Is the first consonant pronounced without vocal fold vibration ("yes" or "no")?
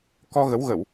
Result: yes